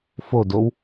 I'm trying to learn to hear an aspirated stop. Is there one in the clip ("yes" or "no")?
no